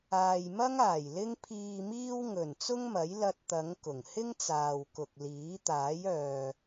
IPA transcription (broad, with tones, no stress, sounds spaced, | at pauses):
aː˨ j m ɐ˥ ŋ aː˨˩ j l ɪ˥ ŋ pʰ iː˨ m iː˧ w ŋ ɵ˨˩ n t͡s ʊ˥ ŋ m ɐ˨˥ j l ɐ˧ t̚ t̪ ɐ˨˧ ŋ k ʊ˨˩ ŋ h ɪ˥ ŋ t͡s aː˨ w k ʊ˨ k̚ l iː˨˥ t̪ aː˨˥ j œː˨